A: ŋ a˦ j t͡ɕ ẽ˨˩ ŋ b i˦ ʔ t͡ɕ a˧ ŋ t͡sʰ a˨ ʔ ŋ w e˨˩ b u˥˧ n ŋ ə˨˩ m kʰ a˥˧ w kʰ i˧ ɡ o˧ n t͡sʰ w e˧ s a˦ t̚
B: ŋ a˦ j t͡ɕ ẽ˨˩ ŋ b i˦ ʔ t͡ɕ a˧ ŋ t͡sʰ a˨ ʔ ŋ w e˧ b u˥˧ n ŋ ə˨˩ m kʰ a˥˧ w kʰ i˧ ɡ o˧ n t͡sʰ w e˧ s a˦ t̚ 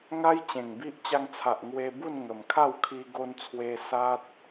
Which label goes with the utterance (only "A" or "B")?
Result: B